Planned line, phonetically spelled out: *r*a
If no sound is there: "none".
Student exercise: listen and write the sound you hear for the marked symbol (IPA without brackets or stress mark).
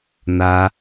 n